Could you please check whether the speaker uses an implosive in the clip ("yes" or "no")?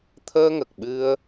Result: yes